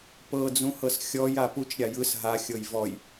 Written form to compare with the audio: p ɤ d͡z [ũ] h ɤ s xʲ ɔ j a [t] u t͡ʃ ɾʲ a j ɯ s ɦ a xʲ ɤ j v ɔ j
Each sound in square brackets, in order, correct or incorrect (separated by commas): correct, incorrect